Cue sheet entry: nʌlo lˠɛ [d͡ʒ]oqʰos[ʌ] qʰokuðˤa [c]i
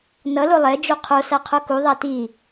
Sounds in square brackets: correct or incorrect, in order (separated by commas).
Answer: correct, incorrect, incorrect